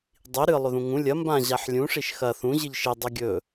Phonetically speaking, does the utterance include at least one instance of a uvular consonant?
no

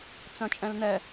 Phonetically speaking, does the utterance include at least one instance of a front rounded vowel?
yes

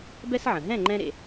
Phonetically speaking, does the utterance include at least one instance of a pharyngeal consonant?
yes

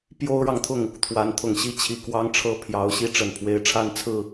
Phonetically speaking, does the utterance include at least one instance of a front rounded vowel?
no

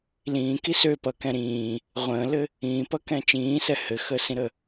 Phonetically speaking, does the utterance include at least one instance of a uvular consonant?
yes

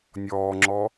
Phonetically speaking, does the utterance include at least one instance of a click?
yes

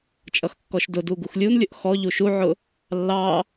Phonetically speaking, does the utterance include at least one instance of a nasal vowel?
no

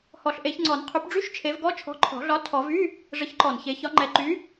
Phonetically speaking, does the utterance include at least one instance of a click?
yes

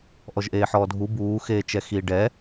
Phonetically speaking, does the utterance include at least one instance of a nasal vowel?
no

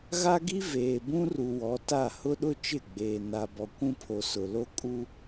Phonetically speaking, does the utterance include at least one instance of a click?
no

